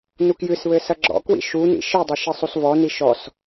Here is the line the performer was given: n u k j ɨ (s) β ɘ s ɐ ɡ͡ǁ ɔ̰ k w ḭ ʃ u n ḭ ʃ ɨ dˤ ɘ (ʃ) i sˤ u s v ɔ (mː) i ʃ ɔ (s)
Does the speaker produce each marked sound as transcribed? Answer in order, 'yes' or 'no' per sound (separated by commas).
yes, yes, no, yes